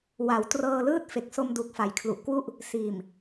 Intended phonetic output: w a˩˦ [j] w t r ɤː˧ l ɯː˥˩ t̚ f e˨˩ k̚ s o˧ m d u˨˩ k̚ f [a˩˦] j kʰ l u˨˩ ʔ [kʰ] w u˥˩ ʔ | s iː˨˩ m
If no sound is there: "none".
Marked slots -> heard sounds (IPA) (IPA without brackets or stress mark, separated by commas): none, a˩˦, k